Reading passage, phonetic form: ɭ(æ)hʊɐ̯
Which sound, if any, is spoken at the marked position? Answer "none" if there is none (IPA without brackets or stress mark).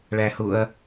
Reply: æ